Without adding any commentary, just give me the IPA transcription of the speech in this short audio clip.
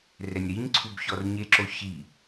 r ɛ nʲ ɾ i ɲ ǀʰ u b ç ɔ r ɲ e ǁ o ç i

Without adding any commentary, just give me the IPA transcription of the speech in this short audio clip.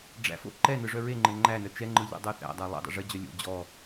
ɖ͡ʐ æ̰ f o̰ ǃ ɛ n ɯ ʐ œ ɹ e ŋ͡ǃ ɘ ŋ͡ǃ æ n œ t͡ʃ ɛ ŋ͡ǃ ɯ ʎ ɛ̰ dˤ œ θ æ̰ dˤ æ lˠ ɛ̰ dˤ ɛ̰ ʐ ɘ d͡ʑ œ lʲ o̰ d͡ʑ ɔ

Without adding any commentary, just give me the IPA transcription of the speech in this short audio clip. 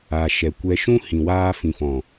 a˨ ʃ ɛ˨ kʷ ɛ˧ ʃ ũ˦ h ĩ˨ w aː˧ f ĩ˨ f ɔ̃˨

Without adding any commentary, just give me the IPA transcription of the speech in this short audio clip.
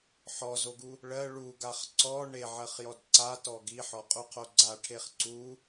ħ ɔ z o ɡ u | ɭ ɜ ɭ u ɡ a χ ǀ ɔ ɳ e ʕ ɜ χ j ɔ d ǀ a t ɔ ɡ i ħ ɔ qʼ u qʰ o ɡ͡ǀ a ʈʰ e χ ǀ u

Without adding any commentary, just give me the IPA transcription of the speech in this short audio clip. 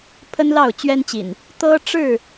pʰ ə˦ n l ɑ˥˨ ʊ̯ t͡ɕ ɥ ɛ˦ n t͡ɕ ḭ˨˩ n | t̪ ɤ˦ ʈ͡ʂ ɻ̩˥˨

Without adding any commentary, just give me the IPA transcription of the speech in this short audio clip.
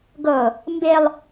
ɡ ɤ | m b e lˠ

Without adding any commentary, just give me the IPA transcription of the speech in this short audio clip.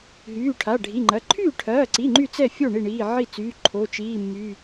ɦ yː˩˧˩ ʈʰ a˩˧˩ ɖʱ i˩˧˩ ŋ͡ǃ ɐ˩˧˩ ǃʰ yː˥˩ ʈʰ ɐː˩˧˩ ǀ i˩˧˩ ŋ͡ǃ y˥˩ t͡s ɛ˥˩ fʲ o˥˩ ɳ i˥˩ ɳ iː˩˧˩ ʕ i˥˩ t͡s yː˩˧˩ ǃʰ o˩˧˩ t͡ʃ iː˩˧˩ mː y˩˧˩

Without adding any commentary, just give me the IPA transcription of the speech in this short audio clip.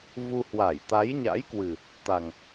v u˧ h w a˧˩ j t̪ a˨˦ j ɲ a̰˧˥ j k w ɨ˨˩ | t̪ a˨˩ ŋ

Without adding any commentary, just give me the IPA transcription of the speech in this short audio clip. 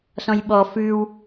s ɔ̃ j ɓ ɔ f ʉ w

